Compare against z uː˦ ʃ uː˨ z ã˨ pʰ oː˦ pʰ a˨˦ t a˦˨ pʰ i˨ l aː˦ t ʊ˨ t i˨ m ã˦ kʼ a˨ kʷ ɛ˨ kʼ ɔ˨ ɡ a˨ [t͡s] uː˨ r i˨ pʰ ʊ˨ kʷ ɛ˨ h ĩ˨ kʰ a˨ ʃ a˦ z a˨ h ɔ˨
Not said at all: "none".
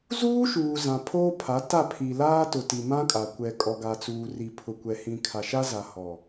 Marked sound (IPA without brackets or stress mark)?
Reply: t͡s